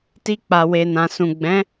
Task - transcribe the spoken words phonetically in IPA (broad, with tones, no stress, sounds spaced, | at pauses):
t i˧ k͡p a˨ w e˨ n ã˨ s ũ˨ ɡ͡b ɛ̃˨˦